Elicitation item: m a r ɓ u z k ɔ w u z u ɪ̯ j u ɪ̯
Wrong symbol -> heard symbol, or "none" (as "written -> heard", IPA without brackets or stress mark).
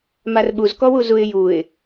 none